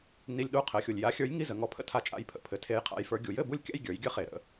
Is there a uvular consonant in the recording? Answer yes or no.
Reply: yes